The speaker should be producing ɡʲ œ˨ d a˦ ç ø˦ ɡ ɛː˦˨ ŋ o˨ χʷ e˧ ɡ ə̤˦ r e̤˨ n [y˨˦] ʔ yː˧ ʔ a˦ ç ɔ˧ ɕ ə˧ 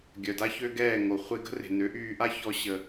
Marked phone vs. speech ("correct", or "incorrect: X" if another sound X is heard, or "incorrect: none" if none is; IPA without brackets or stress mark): incorrect: ø˨˦